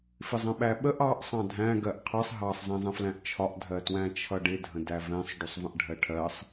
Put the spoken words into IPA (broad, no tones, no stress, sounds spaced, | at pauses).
f ɪ zˤ ə̃ ɓ æ ɓ ə ʔ ɑ ʔ sˤ ɑ̃ dʱ æ̃ ɡ ɜ ʔ qʰ ʌ sˤ ɦ ɑ sˤ z ɛ̃ zˤ ə̃ f l æ̃ ʔ t͡ʃʰ ɒ ʔ dʱ ɜ t w æ̃ t͡ʃʰ ʌ ɖ ɪ dʱ ə̃ d æ v ɛ̃ sˤ ɖ u sˤ v ə̃ ʔ ɖʱ ɜ ʈʰ ɜ sˤ